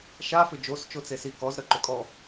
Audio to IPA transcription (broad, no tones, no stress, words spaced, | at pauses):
ʃa fʏd͡ʒos t͡ʃot͡sesi kɔzɾə ǃʏkʼɔ